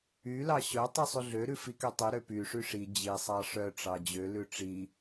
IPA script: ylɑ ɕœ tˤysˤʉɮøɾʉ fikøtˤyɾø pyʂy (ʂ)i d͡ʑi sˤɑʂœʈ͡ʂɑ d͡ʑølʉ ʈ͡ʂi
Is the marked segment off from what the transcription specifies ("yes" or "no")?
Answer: no